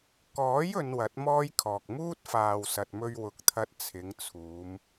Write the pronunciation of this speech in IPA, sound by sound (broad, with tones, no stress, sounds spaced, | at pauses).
k ɔː˨˥ j ɵ˨˧ n w ɐ˨˥ t̚ m ɔː˥ j kʰ ɔː˨ k̚ m uː˥ t̚ f aː˨ w s ɐ˨ t̚ m ɵ˧ ɥ w ʊ˨˥ k̚ t̪ʰ ɐ˧ t̚ t͡sʰ ɪ˨˧ ŋ t͡sʰ uː˨˧ m